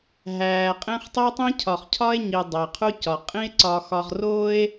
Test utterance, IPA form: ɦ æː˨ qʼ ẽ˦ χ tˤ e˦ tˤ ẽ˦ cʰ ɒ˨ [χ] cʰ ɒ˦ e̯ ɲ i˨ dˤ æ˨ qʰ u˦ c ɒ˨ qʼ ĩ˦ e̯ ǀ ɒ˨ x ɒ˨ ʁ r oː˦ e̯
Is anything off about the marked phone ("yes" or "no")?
no